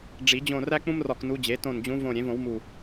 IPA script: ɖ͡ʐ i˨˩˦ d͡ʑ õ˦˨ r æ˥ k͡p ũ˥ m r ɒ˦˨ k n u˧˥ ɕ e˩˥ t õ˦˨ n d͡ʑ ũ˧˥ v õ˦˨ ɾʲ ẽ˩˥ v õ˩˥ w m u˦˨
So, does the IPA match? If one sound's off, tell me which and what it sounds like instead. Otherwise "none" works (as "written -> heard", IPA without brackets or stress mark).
ɕ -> d͡ʑ